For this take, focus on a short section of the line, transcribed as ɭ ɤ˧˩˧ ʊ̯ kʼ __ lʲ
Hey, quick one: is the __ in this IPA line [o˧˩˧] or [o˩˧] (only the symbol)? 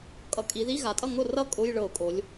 o˩˧